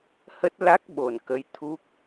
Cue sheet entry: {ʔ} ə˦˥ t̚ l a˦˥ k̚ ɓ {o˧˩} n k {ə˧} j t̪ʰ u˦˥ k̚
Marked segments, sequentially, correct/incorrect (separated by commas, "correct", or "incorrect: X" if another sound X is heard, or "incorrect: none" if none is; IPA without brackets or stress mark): incorrect: h, correct, incorrect: ə˨˦